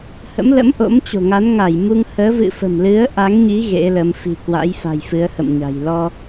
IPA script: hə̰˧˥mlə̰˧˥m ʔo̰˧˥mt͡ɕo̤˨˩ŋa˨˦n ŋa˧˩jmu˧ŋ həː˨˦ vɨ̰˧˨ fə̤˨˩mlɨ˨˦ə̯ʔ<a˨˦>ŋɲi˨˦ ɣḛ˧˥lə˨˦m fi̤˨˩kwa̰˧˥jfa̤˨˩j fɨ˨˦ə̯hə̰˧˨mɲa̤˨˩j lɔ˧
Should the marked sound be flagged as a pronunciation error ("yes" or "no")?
no